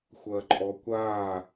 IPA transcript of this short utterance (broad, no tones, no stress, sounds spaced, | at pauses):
xʷ ɐː ǃʼ ɔ kʷ aː